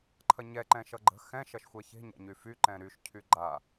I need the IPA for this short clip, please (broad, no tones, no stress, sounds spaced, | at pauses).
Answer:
ǃʰ ɐ ɲ ɛ ǃ ɛ̃ ʃ ʌ ɡ͡ǃ ə̤ x ɛ̃ ʃ ɐ ʃ xʷ ɛ ç e̤ ɲ a̰ ɲ y f y ǃ ɛ̃ ɾ y ʃ cʰ y ɡ͡ǃ a